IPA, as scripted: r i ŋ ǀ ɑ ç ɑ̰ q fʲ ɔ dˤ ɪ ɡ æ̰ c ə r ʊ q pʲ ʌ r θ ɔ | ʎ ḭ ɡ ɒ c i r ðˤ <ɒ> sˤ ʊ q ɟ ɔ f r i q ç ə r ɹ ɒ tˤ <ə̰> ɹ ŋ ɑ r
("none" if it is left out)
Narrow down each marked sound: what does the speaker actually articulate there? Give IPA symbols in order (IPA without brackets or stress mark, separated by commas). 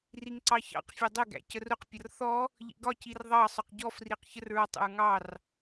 ɑ, ə̰